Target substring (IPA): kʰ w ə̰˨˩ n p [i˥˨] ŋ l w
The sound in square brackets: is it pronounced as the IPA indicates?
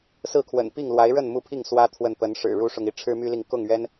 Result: yes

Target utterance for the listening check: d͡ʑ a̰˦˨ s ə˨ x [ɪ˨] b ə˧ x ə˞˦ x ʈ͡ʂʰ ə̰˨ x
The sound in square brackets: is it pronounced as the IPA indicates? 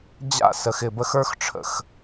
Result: yes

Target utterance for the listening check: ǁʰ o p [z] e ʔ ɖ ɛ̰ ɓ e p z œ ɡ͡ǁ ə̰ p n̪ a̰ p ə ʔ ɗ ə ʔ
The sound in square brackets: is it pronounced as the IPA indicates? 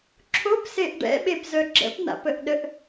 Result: no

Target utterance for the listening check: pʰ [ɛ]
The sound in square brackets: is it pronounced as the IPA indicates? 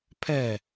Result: yes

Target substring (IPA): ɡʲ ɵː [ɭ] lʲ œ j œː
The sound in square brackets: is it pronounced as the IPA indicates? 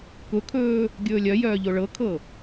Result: no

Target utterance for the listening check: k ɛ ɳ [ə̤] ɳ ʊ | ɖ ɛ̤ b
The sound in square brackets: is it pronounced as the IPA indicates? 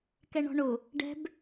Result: no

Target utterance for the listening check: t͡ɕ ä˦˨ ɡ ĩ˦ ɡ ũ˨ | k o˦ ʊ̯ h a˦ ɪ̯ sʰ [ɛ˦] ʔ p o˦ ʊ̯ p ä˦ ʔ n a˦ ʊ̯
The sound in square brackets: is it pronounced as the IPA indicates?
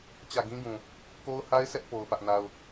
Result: yes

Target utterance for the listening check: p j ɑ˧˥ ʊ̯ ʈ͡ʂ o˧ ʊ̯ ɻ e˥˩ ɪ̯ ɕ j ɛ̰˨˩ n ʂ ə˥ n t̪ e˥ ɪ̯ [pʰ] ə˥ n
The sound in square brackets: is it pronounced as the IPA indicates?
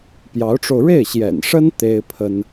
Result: yes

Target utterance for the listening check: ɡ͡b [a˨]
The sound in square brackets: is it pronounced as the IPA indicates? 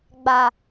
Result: yes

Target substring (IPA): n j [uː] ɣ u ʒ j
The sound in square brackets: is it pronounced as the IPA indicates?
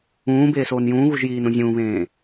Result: no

